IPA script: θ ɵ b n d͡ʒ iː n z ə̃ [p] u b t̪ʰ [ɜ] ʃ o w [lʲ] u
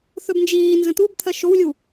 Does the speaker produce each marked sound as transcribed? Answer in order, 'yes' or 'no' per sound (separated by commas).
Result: no, yes, yes